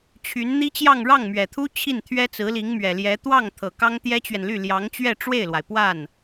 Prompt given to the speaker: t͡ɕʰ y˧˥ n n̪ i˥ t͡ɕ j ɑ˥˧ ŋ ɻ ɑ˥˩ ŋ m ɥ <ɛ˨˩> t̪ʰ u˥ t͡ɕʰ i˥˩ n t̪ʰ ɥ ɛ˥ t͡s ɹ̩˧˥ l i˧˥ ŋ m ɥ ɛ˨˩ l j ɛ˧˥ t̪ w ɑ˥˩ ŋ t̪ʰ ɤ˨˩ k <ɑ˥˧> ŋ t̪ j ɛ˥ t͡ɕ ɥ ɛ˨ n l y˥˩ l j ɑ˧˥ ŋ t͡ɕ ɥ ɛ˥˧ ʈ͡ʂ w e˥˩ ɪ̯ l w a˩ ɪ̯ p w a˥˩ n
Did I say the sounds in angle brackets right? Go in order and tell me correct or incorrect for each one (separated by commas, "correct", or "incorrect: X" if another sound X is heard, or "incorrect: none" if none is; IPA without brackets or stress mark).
correct, incorrect: ɑ˥